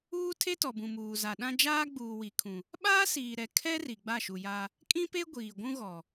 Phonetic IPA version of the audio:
uː˦ tʰ e˦ t ɔ˨ b ũ˨ m uː˨ z a˨ ɗ ã˦ d͡ʒ aː˦ ɡ͡b uː˨ w i˨ kʰ ũ˨ | ɓ aː˦ s iː˨ ɾ ɛ˨ kʰ ɛ˦ r i˨ ɡ͡b a˦˨ ʃ u˨ j a˦ | kʼ ĩ˦ p e˦ ɡʷ iː˨ ɡʷ ũ˦ ɣ ɔ˨

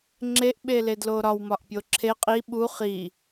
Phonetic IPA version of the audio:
ŋ͡ǁ e ʔ ɓ e l e d l o ɾ ɒ w m ɒ ʔ pʲ o ǁʰ e qʼ i ɓ u χ i

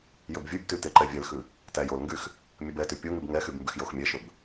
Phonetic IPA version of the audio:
j ɵ b vʲ ʉ b t y t e ǃ ɛ vʲ ɛ l x ʉ | t æ j o l ŋ ɡ y x | mʲ ɵ b ɛ t y pʲ o ŋ y b ŋ ɛ x y b m b y x j o x mʲ ɛ ʃ ɵ b

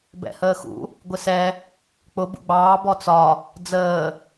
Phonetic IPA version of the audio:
b ɛ̰ h əː x ṵ | ɡʷ ɪ s ɛ | k͡p ʊ b ṵ ɡ͡b ɑː b ɔ t͡s ɒ | d͡z əː

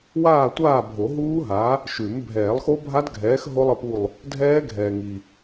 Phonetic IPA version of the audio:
w aː˦˨ tʷ aː˦˨ bʱ o˨˩˦ ɦ uː˦˥ ɦ a˨˥ | ʃ ʉ˨˩˦ m bʱ ɛː˨˩˦ lˠ x o˦˥ bʱ a˦˥ d ɡʱ ɛː˨˥ x ɦ o˦˥ lˠ ə˦˨ p u˦˨ lˠ | dʱ ɛː˦˥ ɡʱ ɛː˨ ŋ i˨

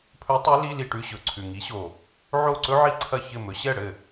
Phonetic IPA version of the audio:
pʰ ɵ˧˥ tˤ i˧˥ l i˧˥˧ l i˥˩ ʈ ʉ˧˥˧ ɕ ɵ˨˩ ǀʰ ʉ˨˩ ŋ i˩˥ ɕ o˨˩ | ʕ o˥˩ ǀ ɵ˥ ʕ i˥˩ ǀʰ ɐ˥˩ ç ɘ˥˩ m ɵ˩˥ ɕ ɛ˥˩ ɽ ɘ˥˩

